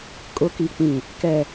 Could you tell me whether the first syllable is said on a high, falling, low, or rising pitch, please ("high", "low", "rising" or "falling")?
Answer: rising